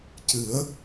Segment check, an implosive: absent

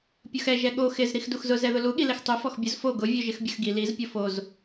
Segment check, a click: absent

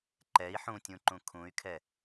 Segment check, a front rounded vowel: present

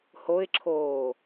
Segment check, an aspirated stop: present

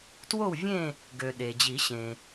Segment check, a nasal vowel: present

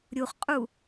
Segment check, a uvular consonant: present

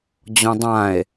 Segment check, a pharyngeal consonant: absent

